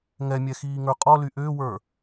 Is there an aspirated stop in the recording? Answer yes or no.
no